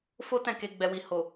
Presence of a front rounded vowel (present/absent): absent